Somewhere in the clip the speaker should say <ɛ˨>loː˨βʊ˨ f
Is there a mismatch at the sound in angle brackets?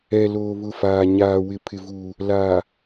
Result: no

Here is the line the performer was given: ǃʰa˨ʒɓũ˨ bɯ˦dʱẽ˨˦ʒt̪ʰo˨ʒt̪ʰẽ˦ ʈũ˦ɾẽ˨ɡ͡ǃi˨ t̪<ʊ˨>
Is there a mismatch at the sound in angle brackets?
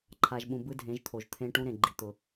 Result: no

